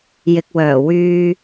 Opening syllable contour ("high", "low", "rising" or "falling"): low